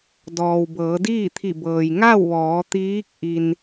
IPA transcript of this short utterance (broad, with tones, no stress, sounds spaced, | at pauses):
d ɔː˩ w b ɤː˩˧ d iː˥˨ t̪ʰ i˧˩ b ɤː˩ j ŋ a˥˨ w ʋ ɔː˩˧ t̪ iː˧˥ k̚ ʔ i˧ n